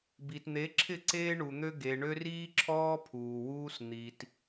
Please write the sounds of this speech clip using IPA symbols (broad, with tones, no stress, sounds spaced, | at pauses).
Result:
b i˨ t n̪ e˨˦ ǁʰ ɪ˦˨ ǀ eː˦ ɳ u˨ n̪ ø˦ ɡ e˨ ɳ ø˦ r iː˦ ǁʰ ɔː˦ pʰ uː˨ w uː˦ s n̪ i˨ t